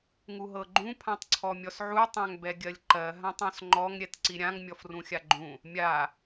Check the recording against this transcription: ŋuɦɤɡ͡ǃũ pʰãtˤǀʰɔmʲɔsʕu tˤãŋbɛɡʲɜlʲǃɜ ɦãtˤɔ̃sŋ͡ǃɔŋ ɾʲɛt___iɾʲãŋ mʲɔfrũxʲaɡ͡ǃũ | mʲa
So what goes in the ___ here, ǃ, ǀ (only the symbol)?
ǀ